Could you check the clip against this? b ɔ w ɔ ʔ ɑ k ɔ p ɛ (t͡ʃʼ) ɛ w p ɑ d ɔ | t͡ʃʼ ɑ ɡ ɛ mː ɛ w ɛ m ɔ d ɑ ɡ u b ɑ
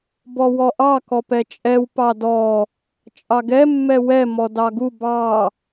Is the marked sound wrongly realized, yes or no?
no